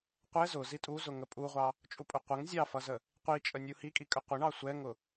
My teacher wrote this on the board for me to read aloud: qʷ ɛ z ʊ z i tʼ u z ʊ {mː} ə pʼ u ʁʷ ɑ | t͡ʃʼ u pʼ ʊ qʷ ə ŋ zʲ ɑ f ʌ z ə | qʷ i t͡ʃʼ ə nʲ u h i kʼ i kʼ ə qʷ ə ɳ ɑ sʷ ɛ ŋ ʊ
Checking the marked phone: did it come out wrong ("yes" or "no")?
yes